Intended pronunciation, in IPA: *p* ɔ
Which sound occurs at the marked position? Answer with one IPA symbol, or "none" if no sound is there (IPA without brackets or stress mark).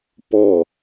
p